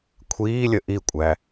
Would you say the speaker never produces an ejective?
no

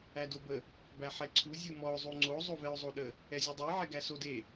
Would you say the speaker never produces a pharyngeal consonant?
no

